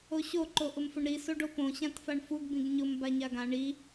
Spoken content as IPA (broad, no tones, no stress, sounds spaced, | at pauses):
o ɕ o ǃ o ʔ ʊ m f ʊ ɳ ɾ i s o ɖ o p õ ɕ ã t f a ɳ f u ɡ b ĩ ɡ ɲ ʊ m b a ɲ a ɡ ã ɳ i